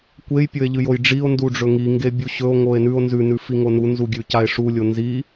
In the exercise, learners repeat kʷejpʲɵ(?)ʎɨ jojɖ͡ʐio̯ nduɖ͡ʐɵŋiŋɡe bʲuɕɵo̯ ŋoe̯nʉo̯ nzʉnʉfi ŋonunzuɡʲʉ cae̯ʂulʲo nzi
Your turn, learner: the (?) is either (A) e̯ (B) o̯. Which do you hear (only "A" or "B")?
A